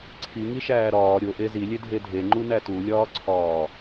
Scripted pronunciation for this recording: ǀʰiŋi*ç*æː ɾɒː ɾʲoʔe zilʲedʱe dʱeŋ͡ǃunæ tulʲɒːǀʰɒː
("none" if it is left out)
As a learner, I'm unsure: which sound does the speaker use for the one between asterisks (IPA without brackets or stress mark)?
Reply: ʃ